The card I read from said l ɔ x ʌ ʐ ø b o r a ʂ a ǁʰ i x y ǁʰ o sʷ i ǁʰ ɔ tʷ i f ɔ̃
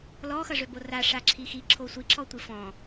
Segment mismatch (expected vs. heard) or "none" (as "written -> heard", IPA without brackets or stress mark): y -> i